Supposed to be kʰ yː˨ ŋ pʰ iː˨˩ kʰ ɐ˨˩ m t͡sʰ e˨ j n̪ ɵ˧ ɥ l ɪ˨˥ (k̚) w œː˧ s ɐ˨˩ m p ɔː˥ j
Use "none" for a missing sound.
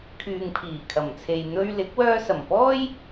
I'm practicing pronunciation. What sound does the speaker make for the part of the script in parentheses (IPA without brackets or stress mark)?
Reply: k̚